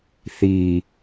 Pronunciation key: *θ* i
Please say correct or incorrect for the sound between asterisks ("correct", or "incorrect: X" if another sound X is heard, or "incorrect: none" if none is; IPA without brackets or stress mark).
correct